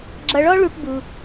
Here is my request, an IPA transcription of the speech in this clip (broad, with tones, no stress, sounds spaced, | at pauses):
ɡ͡ǁ ʌ˧ ɭ ɔ˦ ɭ u˧ ʈ b u˦